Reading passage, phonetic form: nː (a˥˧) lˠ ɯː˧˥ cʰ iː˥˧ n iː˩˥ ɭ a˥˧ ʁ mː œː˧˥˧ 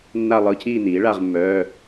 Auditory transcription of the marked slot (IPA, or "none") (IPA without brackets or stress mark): a˥˧